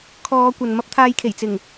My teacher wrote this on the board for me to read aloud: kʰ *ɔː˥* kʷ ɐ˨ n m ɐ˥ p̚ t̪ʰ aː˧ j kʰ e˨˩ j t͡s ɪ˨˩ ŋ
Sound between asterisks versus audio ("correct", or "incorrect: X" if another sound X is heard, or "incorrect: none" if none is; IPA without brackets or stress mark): incorrect: ɔː˨˧